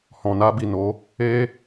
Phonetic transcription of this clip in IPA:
h ɔ̃˨ n a˧ b i˨ n o˨˦ | e˧

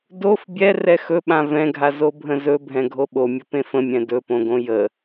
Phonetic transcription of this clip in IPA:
d o f bʲ ɛ r ɛ x ɵ ɓ ã v ɛ̃ ɡʱ a z o bʱ ə̃ z ɵ bʱ ɛ̃ ɡʱ o ɓ o mʲ ə p ẽ f ə̃ mʲ ɛ̃ d ɵ p õ ɡ õ j ə

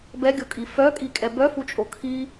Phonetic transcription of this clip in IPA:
b ɛ ɡʲ o kʼ i f œ kʼ i kʼ ɛ b œ f u t͡ʃʼ o kʰ i

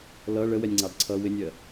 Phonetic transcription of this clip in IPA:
l ʌ ɭ ə w ɛ nʲ ŋ͡ǀ ɑ d ǀʰ ʌ w ɪ nʲ ɜ

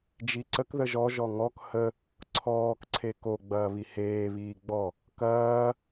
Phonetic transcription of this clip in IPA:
d͡ʒ i ǀ ə k ð ə ʒ ɔ ʒ ɔ ŋ ɔ k h ə | ǀʰ ɔː k ǀʰ e k o ɡ͡b ɐː β i h eː β iː ɡ͡b ɔ | k ɐː

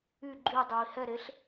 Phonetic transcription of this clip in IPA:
y ɡ͡ǃ y dˤ œ i̯ h ɛ ɾ e ɬ

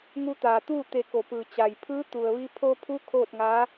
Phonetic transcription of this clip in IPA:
ŋ u˧ t̪ aː˩ t̪ uː˥˨ t̪ e˧˩ k o˩ p ɯː˩ t͡ɕ a˩ j pʰ ɯː˧˥ t̪ u˩ ə̯ ʋ i˧ pʰ o˧ pʰ u˧˥ kʰ oː˥˨ t̚ ŋ a˧˥

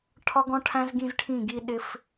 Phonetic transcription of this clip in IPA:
ʈʰ ɒ˦ ɡ ɔ̃˦ ʈʰ æ̃˦ z ɡ ĩ˦ z ʈʰ ĩ˦˨ ɡ i˦ ɗ ɪ˦ f

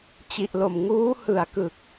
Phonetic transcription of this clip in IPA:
t͡ɕ i˨˩ ʔ l o˨˩ m ŋ uː˦˥ h ɯ˨˩ a̯ k ɯ˨˩ k̚

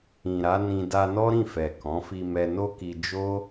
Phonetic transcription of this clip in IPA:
ĩ˨ ɾ a˨˦ n ĩ˧ d a˧ n ɔ˦ ɾ ĩ˦˨ f ɛ˨ k ɔ̃˨˦ f i˧ m ɛ˧ n o˦ k i˧ d͡ʒ o˦

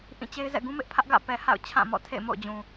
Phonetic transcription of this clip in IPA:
ʔ ĩ˦˨ t͡ɕ e˦ ɪ̯ z ɛ̰˦˨ ɡ ũ˦ m ɪ˦ ʔ pʰ ä˦ ʔ ɡ ä̰˦˨ p ɛ˨ h a̰˦˨ ʊ̯ t͡ɕʰ ã˦˨ m ɔ̰˦˨ tʰ ḛ˦˨ ɪ̯ m o̰˦˨ ʊ̯ d͡ʑ ũ˨

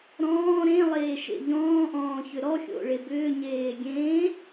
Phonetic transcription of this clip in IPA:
ɾ ɔ̃ː ɾ ẽ lˠ eː ʃ ḛ ʎ ɔ̃ː ʔ ɔ̃ː ç ʏ ɾ ɔ xʲ o̰ ɭ e b ʏː ɲ eː ɡʲ ẽː

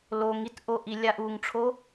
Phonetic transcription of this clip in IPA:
l o ŋ i t ʔ o ʔ i lʲ a ʔ u ŋ ʈ͡ʂʰ o

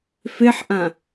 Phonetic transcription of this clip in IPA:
f e ħ ʔ ã

